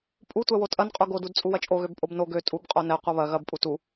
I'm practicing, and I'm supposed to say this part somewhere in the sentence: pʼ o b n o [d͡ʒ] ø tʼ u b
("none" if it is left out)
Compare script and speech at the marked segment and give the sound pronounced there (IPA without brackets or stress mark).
ɡ